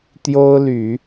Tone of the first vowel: high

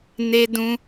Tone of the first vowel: high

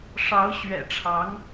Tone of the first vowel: rising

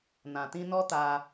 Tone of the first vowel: low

